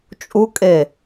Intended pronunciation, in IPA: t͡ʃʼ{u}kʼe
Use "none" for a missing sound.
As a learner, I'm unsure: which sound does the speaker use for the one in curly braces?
u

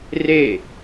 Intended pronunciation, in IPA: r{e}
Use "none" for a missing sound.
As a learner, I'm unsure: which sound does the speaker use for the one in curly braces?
e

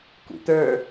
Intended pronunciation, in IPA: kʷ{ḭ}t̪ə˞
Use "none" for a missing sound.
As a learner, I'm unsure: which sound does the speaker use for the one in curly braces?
ḭ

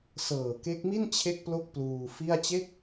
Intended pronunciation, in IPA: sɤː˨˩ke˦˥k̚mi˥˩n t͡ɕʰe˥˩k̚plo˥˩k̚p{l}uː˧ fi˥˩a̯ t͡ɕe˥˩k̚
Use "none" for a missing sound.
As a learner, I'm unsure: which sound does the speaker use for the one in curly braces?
l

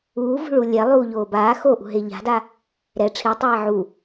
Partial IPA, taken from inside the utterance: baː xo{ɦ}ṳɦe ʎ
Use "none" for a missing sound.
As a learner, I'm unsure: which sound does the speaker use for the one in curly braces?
ʔ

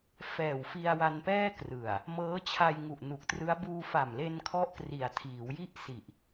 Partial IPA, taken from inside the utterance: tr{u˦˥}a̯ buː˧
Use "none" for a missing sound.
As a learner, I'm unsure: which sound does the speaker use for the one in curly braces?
ɯ˦˥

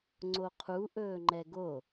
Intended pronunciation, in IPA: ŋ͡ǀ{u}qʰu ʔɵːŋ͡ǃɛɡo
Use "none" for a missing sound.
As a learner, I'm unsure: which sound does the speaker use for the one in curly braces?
o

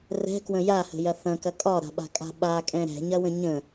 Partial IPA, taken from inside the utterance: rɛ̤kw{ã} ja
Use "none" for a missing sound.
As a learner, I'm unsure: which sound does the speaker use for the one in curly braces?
ə̃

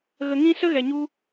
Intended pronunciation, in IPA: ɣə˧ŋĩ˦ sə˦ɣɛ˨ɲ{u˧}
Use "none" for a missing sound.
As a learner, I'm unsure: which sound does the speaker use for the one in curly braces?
u˧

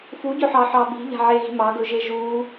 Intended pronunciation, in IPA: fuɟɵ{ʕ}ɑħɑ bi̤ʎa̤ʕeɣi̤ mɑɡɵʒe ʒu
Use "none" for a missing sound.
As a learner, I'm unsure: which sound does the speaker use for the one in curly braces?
ħ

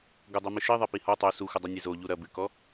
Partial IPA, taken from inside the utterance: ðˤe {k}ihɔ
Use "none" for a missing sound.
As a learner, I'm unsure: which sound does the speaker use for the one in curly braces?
p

